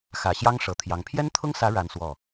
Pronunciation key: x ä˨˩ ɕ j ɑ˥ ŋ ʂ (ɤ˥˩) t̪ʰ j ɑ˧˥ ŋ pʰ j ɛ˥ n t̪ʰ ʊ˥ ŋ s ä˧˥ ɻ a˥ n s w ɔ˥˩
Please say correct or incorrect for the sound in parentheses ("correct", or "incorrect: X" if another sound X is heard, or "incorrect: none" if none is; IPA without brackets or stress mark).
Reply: incorrect: ɤ˨˩